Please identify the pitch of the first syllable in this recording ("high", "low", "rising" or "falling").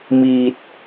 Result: low